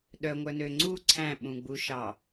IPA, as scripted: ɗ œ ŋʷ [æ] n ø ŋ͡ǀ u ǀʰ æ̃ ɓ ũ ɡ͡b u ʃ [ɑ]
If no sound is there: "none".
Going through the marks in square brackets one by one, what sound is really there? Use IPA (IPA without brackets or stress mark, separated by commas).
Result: œ, ɑ